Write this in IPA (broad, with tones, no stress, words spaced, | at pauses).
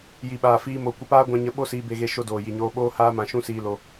ji˨ɓaː˨fiː˧mo˨ kʷə˧paː˦ ɡʷã˧ɲə˨˦ ɓo˦siː˧be˧ɣe˧ ʃo˧doː˨ji˨ɲoː˧ ɓoː˦haː˦ mã˧ ʃũ˦siː˧lo˧